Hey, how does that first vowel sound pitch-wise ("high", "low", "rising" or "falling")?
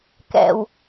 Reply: low